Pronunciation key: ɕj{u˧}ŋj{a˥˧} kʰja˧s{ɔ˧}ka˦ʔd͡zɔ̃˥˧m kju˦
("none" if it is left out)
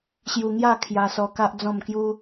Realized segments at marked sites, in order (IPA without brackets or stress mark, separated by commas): u˧, a˥˧, ɔ˧